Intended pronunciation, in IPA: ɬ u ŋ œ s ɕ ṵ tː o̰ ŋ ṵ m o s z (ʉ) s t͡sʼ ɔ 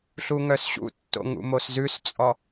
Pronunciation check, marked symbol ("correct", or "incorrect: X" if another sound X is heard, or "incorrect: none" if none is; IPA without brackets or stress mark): correct